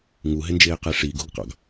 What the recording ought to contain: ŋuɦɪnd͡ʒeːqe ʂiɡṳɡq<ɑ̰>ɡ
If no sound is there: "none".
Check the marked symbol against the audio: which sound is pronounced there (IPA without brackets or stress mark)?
ɑ̰